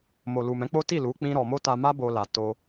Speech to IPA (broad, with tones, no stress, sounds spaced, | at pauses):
m o˨ l u˨ m ɛ̃˨˦ k͡p o˦ t i˦˨ l u˨˦ k͡p ĩ˦ ɾ ɔ˧ m o˦ t a˧ m a˦ b o˧ l a˨ t o˧